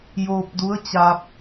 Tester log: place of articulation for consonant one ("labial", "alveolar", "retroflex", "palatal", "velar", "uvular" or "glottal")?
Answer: palatal